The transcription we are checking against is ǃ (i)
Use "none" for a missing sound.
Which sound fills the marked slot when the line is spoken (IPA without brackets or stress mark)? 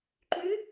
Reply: y